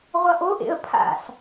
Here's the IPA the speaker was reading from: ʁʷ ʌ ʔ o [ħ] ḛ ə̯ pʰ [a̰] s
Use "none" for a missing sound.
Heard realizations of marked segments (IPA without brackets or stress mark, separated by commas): ʔ, a̰